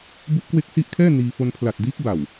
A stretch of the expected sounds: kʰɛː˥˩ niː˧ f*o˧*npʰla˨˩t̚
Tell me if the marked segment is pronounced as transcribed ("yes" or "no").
yes